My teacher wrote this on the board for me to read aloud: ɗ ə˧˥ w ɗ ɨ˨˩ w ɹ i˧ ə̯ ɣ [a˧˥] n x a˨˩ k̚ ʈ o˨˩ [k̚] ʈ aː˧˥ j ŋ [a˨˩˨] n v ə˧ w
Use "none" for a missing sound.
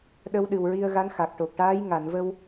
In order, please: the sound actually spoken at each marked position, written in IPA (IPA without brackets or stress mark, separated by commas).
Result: a˧˥, k̚, a˨˩˨